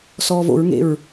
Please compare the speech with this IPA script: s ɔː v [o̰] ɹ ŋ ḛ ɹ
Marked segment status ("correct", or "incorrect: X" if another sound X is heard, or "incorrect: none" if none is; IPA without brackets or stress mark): correct